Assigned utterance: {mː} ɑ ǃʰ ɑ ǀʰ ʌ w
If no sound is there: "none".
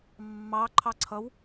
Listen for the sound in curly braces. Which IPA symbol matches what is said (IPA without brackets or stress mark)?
mː